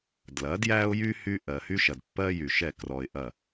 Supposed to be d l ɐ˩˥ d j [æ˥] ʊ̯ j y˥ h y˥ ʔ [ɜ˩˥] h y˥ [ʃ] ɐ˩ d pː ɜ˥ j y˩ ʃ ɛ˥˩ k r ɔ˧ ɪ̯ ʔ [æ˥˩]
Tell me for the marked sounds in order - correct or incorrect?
correct, incorrect: ɜ˩, correct, incorrect: ɐ˥˩

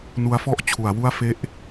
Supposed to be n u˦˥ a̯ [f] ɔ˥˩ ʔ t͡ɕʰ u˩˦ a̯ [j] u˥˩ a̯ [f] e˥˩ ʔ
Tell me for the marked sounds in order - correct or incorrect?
correct, incorrect: w, correct

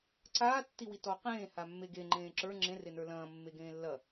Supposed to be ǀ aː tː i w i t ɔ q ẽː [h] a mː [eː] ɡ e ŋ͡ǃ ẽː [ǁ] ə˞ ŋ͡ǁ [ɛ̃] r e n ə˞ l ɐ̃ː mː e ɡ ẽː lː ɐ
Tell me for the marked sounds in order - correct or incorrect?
correct, incorrect: e, correct, incorrect: ẽ

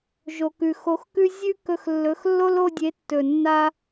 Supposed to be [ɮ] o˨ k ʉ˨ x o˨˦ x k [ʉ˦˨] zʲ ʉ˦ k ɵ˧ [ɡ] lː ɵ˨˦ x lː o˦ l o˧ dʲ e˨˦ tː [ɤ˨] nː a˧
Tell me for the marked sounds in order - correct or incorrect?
incorrect: ʒ, incorrect: ʉ˦, incorrect: x, incorrect: ɵ˨

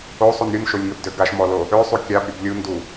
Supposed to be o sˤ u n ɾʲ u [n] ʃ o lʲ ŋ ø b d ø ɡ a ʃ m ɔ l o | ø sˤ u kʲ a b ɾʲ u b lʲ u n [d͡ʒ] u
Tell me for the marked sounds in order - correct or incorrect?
correct, incorrect: d

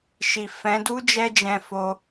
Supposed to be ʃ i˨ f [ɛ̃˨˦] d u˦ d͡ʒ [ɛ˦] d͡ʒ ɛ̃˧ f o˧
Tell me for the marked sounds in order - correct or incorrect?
correct, correct

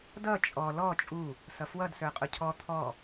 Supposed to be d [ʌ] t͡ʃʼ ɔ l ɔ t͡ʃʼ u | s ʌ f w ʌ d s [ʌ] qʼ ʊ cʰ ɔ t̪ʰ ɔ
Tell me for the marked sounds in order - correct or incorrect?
correct, incorrect: ə˞

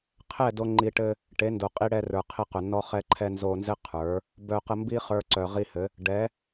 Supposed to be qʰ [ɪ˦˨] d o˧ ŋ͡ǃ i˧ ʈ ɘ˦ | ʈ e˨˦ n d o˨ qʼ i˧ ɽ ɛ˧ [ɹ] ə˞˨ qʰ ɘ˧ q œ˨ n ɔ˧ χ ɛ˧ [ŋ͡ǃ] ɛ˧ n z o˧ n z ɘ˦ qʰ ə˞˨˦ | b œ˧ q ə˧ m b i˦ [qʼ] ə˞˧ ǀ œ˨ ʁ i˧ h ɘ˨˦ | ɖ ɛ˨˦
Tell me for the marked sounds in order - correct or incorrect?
incorrect: ɛ˦˨, incorrect: r, incorrect: ǃʰ, incorrect: χ

